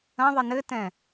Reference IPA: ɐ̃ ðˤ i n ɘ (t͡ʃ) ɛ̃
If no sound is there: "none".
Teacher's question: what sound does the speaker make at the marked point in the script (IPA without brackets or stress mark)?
t